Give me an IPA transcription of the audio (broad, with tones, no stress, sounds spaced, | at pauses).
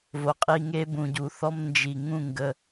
v o˨ qʼ i˧ ŋ e˦ b ũ˨ ɟ u˨ θ ɔ˧ m n d͡ʒ i˨ ŋ ũ˦˨ ŋ ɡ ə˧